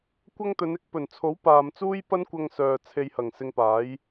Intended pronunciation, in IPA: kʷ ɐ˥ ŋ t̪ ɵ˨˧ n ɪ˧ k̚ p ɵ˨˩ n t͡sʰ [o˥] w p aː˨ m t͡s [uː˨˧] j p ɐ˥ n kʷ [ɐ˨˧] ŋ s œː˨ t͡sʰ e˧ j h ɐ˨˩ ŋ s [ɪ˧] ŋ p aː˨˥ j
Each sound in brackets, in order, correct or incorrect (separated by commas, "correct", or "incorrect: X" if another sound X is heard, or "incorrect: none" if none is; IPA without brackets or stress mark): incorrect: o˨˥, incorrect: uː˥, incorrect: ɐ˧, correct